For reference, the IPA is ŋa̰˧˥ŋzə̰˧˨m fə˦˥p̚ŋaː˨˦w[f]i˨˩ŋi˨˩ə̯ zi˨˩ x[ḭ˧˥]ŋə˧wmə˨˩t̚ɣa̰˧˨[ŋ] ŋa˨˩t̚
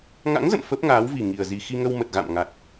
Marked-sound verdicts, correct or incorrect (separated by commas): incorrect, incorrect, incorrect